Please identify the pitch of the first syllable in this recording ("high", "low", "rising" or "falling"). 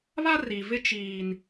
high